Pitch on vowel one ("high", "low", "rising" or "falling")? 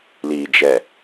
low